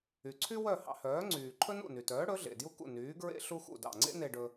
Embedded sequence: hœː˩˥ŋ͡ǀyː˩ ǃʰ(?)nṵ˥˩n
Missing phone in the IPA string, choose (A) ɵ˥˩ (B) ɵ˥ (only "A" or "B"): B